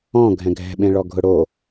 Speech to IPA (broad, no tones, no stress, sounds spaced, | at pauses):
ɔ̃ ɡʱ ɛ̃ ɡʱ ɛ̤ ɓ ẽ ɭ ɔ ɡʱ ʊ ɽ o